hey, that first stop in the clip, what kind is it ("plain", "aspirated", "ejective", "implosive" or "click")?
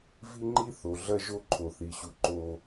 click